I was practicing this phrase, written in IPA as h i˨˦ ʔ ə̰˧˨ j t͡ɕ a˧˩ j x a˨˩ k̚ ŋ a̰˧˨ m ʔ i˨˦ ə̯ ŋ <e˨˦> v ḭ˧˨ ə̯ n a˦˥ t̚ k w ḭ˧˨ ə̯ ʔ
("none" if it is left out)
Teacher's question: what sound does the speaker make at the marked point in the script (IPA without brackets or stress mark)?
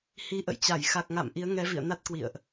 ɛ˨˦